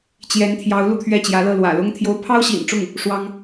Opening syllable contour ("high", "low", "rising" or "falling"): rising